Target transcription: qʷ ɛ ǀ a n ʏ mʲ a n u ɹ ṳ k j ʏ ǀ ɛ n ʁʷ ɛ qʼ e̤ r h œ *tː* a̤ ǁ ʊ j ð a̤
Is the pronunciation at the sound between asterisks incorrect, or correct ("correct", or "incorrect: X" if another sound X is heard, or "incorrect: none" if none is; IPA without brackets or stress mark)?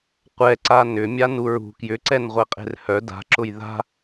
incorrect: d